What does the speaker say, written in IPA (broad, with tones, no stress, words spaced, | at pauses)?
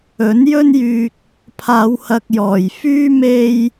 ɵ˨˥njɵ˥njyː˧k̚ | pʰaː˨˧whɐ˨k̚jɔː˨˩jfyː˥ me˧j